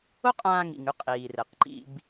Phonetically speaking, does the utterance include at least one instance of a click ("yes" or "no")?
yes